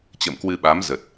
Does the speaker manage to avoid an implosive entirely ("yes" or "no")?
no